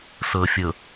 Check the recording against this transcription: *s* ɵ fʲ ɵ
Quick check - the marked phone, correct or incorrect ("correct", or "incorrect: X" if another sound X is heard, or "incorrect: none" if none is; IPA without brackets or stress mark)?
correct